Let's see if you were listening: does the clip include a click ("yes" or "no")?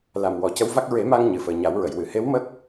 no